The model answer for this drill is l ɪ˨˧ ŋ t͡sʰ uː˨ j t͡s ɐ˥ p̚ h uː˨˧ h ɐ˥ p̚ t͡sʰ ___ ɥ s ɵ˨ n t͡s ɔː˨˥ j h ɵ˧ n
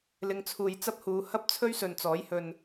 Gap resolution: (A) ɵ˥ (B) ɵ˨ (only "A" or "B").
A